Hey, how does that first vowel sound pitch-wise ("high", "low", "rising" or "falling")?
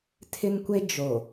high